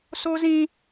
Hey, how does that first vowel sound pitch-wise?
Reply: high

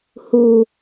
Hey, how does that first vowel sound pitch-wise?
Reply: low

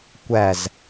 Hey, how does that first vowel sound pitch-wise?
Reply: falling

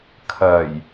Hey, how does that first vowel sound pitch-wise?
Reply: low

